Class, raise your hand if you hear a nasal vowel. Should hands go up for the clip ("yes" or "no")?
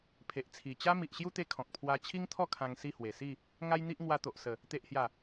yes